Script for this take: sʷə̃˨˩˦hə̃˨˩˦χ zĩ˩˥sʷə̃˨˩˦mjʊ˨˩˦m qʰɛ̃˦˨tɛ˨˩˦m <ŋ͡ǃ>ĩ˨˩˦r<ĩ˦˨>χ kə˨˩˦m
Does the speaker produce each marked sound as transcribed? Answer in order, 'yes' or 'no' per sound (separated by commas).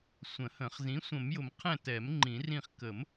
yes, yes